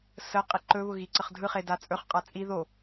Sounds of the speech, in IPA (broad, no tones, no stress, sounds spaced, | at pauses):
s ə qʼ i ǃ ɵ β ʊ ɣ i ǀ ə χ dʱ ɯ χ e d a t͡sʼ ɵ χ qʼ a t͡sʼ i ð o